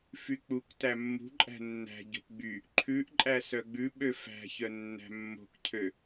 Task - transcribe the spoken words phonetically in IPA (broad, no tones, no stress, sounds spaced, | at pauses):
f y k͡p u k t æ mː ṳ ǃʼ æ̤ nː æ̤ ɟ o̤ p ɡ͡b y | ǃʰ ʉ ʔ ǃʼ æ s œ ɡ͡b ʉ ɓ ø f æ̤ ç œ nː æ̤ mː o̤ k cʰ ø